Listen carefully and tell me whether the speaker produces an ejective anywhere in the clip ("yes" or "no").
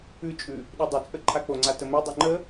yes